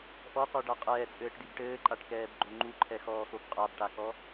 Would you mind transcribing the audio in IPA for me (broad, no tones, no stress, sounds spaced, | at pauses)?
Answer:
ʔ ɔ qʷ ɛ ɖ a qʼ ɛː t͡sʼ ɘː ʈ d i b ʈ ɘː ǃʼ a ʈ k ɛː b ɡ͡ǃ o ŋ͡ǃ u ǃʰ ɛ x ɔː x o b qʼ a b ʈ a k ɔ